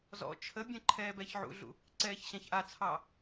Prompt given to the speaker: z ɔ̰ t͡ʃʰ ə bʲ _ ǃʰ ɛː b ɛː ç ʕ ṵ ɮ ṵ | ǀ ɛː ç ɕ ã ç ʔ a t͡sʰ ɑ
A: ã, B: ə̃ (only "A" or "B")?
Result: B